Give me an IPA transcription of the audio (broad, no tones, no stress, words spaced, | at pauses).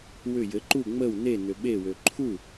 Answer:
wʏ jɘ ǃu ŋ͡məw ne nʏɓe wøǃʰu